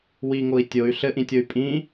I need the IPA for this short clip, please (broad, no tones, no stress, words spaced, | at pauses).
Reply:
wiŋoi̯ tʲoy̯ ɬɘʔĩtʲoy̯ pʼĩ